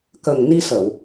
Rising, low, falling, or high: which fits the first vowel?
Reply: low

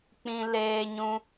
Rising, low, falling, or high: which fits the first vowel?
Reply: high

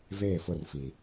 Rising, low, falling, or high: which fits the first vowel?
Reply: falling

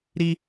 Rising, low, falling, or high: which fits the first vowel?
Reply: high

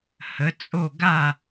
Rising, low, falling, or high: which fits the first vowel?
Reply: rising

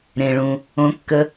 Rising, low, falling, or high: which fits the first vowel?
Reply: low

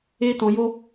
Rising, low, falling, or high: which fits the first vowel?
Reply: high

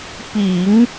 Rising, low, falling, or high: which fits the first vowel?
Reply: low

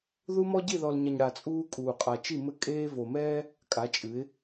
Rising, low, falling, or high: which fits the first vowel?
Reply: high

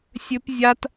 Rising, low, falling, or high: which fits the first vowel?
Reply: high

